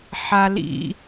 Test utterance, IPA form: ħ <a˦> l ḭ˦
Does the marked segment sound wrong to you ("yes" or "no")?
no